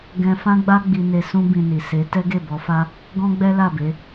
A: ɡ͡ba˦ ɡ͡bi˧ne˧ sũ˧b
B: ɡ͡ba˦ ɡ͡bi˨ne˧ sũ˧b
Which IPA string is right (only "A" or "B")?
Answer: A